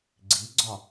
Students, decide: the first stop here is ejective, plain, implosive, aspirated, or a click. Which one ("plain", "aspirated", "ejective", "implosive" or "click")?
click